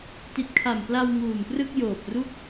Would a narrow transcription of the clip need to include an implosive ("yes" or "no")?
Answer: no